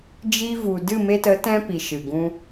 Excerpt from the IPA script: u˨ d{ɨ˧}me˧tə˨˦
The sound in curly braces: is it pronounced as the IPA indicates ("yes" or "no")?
no